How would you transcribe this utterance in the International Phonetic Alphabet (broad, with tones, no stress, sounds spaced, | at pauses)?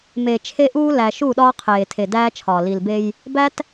m eː˨ t͡ʃʰ e˦ ʔ uː˦ l æ˨ ʃ u˦˨ ɗ ɒː˦ qʰ eː˨ tʰ e˨ d æː˦ t͡ʃʰ ɒː˨ l i˨ l b e˦ j | b æ˦ t